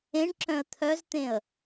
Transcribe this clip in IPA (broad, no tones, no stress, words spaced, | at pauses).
ẽɳǁœ̃ə̯ t̪ʰœzt̪ẽə̯